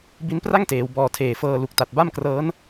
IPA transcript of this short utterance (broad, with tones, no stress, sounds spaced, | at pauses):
b i˦˥ n p r a˥˩ ŋ t eː˩˦ w b ɔː˨˩ tʰ eː˨˩ f ɤː˧ l u˨˩ k̚ t a˨˩ t̚ b a˥˩ m k r ɤː˦˥ n